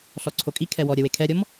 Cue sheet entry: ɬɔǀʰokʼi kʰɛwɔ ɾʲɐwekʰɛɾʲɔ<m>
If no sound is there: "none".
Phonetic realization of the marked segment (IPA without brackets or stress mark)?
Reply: m